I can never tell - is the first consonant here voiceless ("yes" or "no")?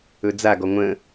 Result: no